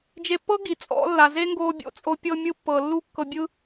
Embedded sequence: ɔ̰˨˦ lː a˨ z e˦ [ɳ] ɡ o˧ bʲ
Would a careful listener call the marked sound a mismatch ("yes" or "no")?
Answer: yes